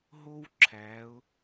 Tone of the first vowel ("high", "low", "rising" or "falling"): high